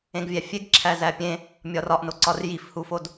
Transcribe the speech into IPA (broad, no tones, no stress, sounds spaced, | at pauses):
ẽ ɡ vʲ æ fʲ e ɡ ǁʰ æ z æ pʲ ẽ | mʲ ɒ r ɒ ʔ n o ǀ ɒ r j i f h u f o d